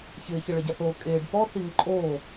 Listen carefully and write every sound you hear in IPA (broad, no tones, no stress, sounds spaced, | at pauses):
ç ɪː ç e ɭ e ɟ a θ oː kʼ eː ɖ p ɔ θ i ŋ ɪ ǃʼ oː